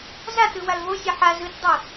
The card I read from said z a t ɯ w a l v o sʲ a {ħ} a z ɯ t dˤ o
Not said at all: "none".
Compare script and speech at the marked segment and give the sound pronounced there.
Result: ħ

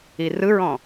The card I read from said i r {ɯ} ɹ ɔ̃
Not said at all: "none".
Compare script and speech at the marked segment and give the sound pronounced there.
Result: ɯ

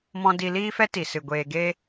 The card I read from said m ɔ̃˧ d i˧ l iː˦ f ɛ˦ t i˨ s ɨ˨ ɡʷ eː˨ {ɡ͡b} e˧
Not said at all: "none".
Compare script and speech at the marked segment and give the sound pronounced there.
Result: ɡ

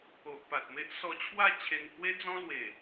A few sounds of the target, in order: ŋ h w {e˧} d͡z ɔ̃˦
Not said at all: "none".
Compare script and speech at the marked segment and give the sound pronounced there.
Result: e˦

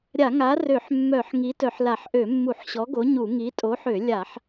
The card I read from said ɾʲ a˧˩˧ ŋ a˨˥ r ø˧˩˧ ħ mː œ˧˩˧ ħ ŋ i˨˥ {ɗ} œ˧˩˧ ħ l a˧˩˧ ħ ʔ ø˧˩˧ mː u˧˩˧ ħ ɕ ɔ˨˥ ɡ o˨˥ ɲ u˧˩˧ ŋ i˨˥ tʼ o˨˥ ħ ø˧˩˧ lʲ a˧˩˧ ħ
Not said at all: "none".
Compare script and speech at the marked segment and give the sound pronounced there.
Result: t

